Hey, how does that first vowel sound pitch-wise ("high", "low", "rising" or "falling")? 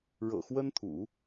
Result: low